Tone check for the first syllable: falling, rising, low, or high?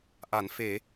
low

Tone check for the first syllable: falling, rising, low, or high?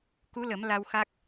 rising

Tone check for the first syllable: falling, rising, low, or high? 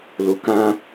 low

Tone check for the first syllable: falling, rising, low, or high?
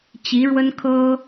rising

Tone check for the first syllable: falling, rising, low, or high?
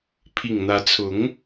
low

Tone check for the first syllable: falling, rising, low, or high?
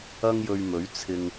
high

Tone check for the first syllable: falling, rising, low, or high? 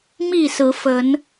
falling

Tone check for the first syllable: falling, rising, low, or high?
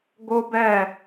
high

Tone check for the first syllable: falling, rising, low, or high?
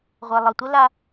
low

